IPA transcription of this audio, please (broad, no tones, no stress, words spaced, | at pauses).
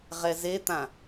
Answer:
ʁɛzet̪ã